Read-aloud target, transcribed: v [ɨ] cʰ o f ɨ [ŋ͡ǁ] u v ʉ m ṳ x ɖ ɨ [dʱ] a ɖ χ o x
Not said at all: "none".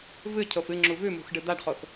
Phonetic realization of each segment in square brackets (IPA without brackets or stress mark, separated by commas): ɨ, ŋ͡ǁ, d̪